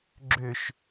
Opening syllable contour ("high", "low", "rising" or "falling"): low